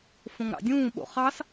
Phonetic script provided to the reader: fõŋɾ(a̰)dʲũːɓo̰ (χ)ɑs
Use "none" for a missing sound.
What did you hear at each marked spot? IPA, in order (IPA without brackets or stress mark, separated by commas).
ɑ̰, χ